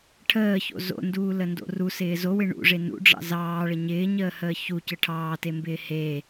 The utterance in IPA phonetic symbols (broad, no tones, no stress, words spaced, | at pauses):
ʈʰəːço̰ zo̰nduːləndo̰ rusɪː zowɪ ɳṵʐe nṵɖ͡ʐɑ̰ zɑːɭə ɲɪːɲəːhəː çucə ʈʰɑːtembɪː he